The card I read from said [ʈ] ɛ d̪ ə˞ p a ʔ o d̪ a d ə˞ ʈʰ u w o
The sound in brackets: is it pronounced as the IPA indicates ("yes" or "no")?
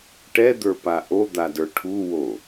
yes